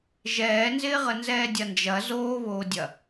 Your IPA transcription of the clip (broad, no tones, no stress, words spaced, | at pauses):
ʒɛːnzɪːʁə nzɛːdʲɐnd͡ʒɐ zoːβoːdʲɐ